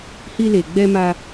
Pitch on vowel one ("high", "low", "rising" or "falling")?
high